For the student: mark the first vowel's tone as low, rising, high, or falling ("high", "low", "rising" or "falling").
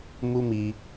high